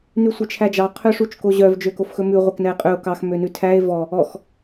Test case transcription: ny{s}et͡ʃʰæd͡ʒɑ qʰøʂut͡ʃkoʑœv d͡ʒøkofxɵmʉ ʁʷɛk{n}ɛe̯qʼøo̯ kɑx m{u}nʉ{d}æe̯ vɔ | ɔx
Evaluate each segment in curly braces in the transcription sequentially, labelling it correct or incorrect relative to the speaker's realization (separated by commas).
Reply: incorrect, correct, incorrect, incorrect